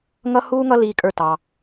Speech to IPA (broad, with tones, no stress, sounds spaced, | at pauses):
ŋ ʌ˦ h uː˦ ŋ ʌ˦ l iː˦ kʼ ə˞˦ t ɑ˧